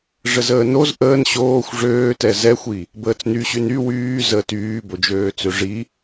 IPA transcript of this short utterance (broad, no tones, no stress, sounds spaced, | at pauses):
ʐ ə z əː n o z ʔ əː n ɕ oː xʷ ʐ øː t ɛ z ɛ xʷ i | b əː t͡s n y ɕ y n y w yː z əː t yː b o d͡ʒ øː t͡s ø ʐ i